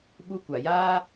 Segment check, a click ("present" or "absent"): absent